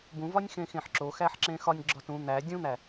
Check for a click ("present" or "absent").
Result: present